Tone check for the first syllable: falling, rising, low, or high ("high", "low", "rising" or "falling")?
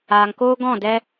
low